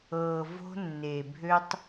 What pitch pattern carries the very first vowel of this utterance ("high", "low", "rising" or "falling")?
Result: low